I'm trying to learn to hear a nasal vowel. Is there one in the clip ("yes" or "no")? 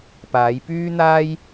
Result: no